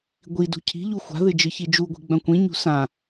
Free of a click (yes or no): yes